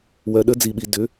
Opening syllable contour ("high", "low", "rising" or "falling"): low